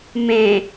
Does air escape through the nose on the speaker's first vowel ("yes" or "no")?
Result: yes